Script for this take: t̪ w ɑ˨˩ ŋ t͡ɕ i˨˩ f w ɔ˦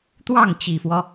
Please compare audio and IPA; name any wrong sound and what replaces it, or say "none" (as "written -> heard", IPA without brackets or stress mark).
ɑ˨˩ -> ɑ˥˩